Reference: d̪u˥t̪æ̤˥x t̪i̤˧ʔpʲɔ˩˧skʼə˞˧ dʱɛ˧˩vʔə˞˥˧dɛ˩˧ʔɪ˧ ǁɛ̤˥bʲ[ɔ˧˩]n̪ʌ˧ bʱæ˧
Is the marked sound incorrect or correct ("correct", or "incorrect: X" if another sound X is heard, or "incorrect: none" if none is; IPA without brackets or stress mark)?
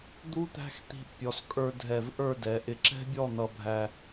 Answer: incorrect: ɔ˥˧